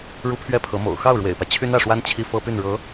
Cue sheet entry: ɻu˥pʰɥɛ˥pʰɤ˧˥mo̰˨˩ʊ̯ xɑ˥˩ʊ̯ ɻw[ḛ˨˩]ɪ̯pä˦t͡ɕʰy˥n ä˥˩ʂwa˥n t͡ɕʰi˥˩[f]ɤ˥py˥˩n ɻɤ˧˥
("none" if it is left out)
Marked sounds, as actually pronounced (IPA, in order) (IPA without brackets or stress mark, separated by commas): ḛ˨˩, f